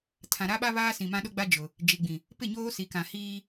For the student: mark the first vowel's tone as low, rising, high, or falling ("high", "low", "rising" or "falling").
low